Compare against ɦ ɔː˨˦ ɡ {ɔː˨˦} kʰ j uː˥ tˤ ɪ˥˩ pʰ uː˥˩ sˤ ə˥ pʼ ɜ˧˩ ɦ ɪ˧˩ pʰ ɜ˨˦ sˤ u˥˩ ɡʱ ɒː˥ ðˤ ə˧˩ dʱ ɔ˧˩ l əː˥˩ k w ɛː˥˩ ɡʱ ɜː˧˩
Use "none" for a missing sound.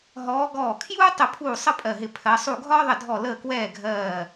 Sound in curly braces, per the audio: ɔː˧˩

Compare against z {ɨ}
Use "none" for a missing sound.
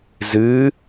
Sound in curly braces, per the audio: ɨ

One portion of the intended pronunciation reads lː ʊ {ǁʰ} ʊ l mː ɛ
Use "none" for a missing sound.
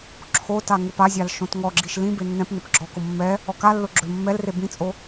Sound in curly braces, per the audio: ɡ͡ǁ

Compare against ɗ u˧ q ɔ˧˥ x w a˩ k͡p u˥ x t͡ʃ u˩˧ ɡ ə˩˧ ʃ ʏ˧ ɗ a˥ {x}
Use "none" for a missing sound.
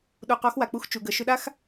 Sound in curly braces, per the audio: x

